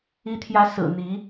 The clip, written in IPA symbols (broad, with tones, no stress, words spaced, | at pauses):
i˧˥t̪ʰjä˧˥ sɹ̩˨˩n̪i˧˥